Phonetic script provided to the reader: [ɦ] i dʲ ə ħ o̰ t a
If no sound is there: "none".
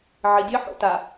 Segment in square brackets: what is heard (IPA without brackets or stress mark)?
ʕ